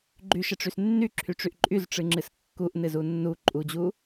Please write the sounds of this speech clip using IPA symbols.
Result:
ɡ͡ǃyʃəʈ͡ʂys nːyǁʰyʈ͡ʂyʔ ǃʼyzʈ͡ʂɨŋ͡ǁɨs kːuʔnɨzu nːu ǃʼud͡ʑu

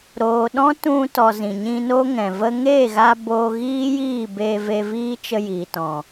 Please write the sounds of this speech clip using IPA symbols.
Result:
ɾoː˨ɗɔ̃˦tũ˧tɔ˨ zĩ˨ɲĩ˧no˦ŋɛ̃˨ və˧ŋe˦˨ɣa˧ boː˧ɣiː˦jiː˦˨be˧ ve˧viː˦ t͡ʃə˧jiː˨tɔ̃˨

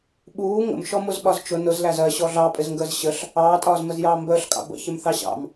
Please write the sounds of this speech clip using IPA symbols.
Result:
ɓuː ŋə̰mʃɔmʊz ɓɒzt͡ʃʊ nʊz læzɜɕɔ ɮɑpʼɪzŋɡəːz ɕəɬ | ɑːtʼɒːzməzjɑː mbəːɬkʼɑ̰ bə̰ çɪmθɑɕɑ̰m

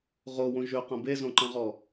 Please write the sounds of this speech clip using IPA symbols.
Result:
ʁowõ ʒøqɐ̃ bezõǃɐ̃ʁɔ

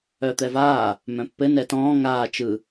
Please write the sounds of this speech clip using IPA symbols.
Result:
œt̪ɛvaː | mœ̃pːɘ nɛtɔ̃ː ŋaː t͡ʃɯ

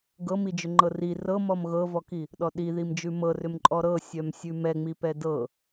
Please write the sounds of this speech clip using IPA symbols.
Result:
ɡɤmid͡ʒʏŋ͡ǃɤ ri rɤmɔm ɣɤvɔki | ɗɔɗiðimd͡ʒʉ mɤrʏmǃʼɔ ɾɤsʲœm sʲʉmɛŋ͡mipɛ dɤ

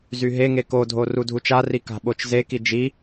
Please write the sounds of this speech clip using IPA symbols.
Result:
zyɦeŋe kodʱo rudʱut͡ʃari ka̤ɓot͡ʃzeki d͡ʒi

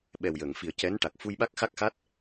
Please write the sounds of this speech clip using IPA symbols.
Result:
ɓɛ˨˩wjəː˨˩˨ŋfi˨˩ə̯ cɛ˧˥nʈa˨˩k̚ fu˧jɓa˦˥k̚xa˦˥k̚xa˦˥t̚

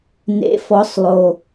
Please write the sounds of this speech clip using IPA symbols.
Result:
nḛ˧˥fɔ˧˥sˤlˠo˧

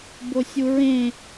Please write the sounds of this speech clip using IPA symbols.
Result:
bosʲuɹẽ

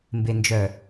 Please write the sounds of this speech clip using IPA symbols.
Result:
mbend͡ʒœ

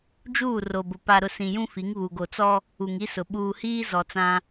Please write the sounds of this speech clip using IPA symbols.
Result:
d͡ʒuː˦˨ ro˨bʊ˨ pa˨ɾʊ˨ sĩ˨jũ˦fi˨˦ŋ βu˨ ɡo˨t͡sɔ˦ | u˨ŋi˦sʊ˨ ɓuː˨hiː˦ zɔ˨t͡sã˦

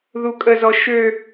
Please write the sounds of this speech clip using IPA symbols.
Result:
ðukʼəzɔ ʃø

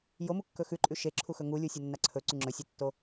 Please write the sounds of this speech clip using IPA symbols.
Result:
jomukːɵ xʉǃʼʉ ʃeǁʰuxɵ ŋulʲusʲɐnːa ǀʰɵǀʉ ŋ͡ǁɵsʲɨtːo

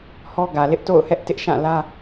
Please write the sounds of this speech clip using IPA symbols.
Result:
hɔ˦ɡä˨lɪ˦ʔ to̰˦˨ʊ̯hɛ˦ʔ tɪ˦ʔ ʃã˦˨lä˦

